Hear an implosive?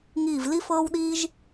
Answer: yes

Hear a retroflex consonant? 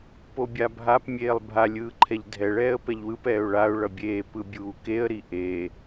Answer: yes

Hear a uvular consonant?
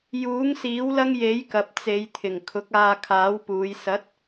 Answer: no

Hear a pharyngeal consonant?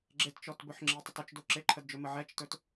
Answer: yes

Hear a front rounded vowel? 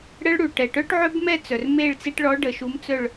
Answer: yes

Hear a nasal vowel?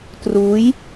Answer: no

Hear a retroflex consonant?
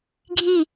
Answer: no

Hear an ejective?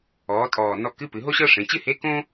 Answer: yes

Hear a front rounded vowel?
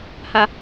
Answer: no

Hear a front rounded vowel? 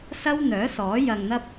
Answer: yes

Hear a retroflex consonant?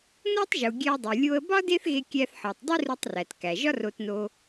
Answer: no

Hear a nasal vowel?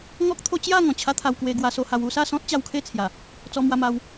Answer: yes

